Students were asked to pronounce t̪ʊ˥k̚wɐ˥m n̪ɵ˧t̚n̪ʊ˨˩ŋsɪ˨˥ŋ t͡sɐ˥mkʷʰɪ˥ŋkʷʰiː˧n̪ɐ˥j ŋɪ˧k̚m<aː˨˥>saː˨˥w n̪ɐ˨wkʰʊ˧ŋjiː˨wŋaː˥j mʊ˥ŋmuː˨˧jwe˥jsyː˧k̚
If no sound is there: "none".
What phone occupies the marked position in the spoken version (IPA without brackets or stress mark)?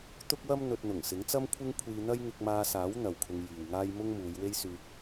aː˧